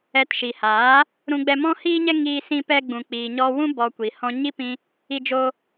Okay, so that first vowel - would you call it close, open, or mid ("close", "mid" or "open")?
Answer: mid